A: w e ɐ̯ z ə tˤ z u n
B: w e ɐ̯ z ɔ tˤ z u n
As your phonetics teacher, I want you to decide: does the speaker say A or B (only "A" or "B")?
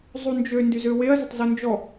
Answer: A